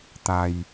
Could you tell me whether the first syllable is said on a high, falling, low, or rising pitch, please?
low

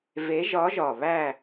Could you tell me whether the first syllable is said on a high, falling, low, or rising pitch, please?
rising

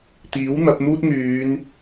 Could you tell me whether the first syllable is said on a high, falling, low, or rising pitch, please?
rising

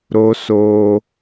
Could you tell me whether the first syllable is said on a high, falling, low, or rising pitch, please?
high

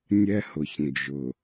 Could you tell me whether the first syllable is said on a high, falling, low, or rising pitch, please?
high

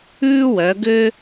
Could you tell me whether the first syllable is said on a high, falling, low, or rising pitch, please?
high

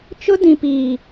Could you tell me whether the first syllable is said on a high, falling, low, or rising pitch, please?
high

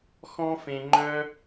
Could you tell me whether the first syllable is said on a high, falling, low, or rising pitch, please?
high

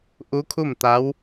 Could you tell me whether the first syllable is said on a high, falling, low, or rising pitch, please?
rising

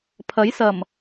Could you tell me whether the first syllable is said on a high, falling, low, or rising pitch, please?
rising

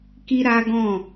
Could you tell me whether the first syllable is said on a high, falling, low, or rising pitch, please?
high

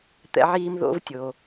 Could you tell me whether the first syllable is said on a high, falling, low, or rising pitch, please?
high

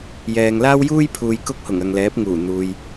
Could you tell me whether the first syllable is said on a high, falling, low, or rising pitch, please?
low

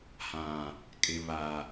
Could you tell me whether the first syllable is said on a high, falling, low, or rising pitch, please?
low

